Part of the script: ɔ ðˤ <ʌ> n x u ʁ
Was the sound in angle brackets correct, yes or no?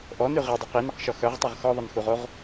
no